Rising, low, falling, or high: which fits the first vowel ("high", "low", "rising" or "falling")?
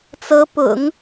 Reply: rising